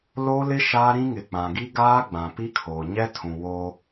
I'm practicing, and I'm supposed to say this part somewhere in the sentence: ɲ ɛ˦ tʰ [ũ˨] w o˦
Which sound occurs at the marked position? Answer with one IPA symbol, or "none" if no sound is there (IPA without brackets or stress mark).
ũ˨